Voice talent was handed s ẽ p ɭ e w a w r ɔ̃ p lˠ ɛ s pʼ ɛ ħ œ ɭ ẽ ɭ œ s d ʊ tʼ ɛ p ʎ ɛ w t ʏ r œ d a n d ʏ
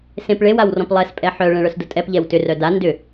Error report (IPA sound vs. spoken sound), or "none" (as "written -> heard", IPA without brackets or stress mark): none